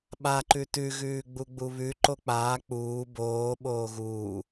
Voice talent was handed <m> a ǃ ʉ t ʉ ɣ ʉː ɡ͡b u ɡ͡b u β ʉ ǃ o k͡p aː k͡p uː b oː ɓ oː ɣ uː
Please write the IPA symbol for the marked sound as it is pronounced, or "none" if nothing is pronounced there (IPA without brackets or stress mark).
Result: ɓ